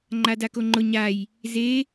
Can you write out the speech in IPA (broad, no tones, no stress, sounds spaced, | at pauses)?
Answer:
ŋ͡ǃ a d a k o ŋ͡ǃ ʊ ɲ a j | z e